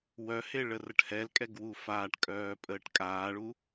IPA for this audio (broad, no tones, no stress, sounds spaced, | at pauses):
w œ h e ɭ ə r ə ʈ h ɛ l kʼ ɛ ɡ w u f aː ʈ kʼ œː pʼ əː ʈ kʼ aː ɭ u